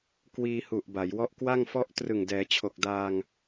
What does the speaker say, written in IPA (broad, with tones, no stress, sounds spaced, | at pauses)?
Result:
k w iː˧ h u˨˩ ʔ b a˩˦ j w ɔ˦˥ ʔ k w a˥˩ ŋ f ɔ˥˩ ʔ t r ɯ˨˩ ŋ d ɛː˩˦ t͡ɕʰ o˨˩ k̚ d aː˧ ŋ